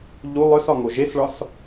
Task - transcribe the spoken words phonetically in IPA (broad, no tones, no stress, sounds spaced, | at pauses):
ʎ u lˠ œ s ɒ ŋ o ʒ e s ɭ ɒ s